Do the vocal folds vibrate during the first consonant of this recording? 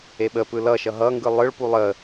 yes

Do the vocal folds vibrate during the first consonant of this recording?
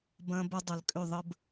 yes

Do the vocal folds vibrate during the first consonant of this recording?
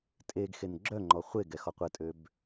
no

